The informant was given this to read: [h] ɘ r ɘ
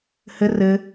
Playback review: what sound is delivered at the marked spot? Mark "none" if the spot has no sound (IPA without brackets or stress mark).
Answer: h